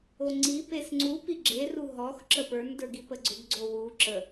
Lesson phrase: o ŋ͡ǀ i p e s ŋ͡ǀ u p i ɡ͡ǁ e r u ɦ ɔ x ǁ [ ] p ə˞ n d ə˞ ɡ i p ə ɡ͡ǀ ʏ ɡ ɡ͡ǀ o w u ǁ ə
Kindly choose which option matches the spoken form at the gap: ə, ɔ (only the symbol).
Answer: ə